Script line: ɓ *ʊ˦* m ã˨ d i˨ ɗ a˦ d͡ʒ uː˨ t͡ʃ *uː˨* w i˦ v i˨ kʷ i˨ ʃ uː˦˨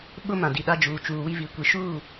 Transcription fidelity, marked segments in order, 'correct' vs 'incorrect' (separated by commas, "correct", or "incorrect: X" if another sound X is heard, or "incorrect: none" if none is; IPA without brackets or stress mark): correct, correct